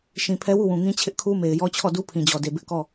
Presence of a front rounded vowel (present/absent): absent